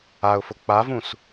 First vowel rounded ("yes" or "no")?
no